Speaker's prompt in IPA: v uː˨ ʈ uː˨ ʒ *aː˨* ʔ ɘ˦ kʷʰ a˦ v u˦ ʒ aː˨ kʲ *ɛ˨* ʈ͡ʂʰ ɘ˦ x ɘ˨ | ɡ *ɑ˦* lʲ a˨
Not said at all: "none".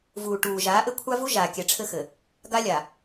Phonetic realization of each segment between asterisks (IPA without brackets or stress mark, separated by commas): aː˨˦, ɛ˨, a˦